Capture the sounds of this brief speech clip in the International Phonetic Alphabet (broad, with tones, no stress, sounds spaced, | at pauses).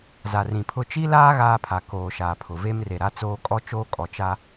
z a˨ r ĩ˨ pʰ ʊ˦ t͡ʃ i˦ l aː˦ ɣ aː˦ pʰ a˨ k oː˨ ʃ aː˨ pʰ ʊ˨ v e˦ m r e˨ ɾ a˦ t͡s oː˦ kʼ ɔ˦ t͡ʃ oː˦ kʼ ɔ˨ t͡ʃ a˦